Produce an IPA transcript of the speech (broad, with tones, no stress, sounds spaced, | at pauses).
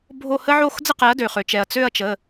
bʱ o˥˨ h ə˦ ʕ o˥˨ x d͡z ə˥˨ q ɛ˩˥ ɐ̯ d ø˩ χ ø˩ t͡ʃ ɛ˩ ɐ̯ t͡s ø˥˨ ɐ̯ t͡ʃ ə˩˧˩